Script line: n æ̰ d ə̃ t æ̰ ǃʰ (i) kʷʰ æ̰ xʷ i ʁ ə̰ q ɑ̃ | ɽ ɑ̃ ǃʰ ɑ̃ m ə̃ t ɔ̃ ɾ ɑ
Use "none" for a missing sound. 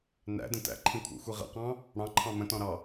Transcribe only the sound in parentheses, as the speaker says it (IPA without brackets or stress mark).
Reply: ĩ